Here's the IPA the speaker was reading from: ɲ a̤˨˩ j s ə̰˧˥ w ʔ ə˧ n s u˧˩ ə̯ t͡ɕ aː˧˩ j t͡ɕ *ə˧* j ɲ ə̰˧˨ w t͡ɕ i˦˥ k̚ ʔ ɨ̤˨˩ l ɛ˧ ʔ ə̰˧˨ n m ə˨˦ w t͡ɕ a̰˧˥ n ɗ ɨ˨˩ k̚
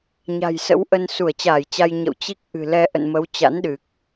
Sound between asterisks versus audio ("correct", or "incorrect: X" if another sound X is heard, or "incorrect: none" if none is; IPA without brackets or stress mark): incorrect: a˧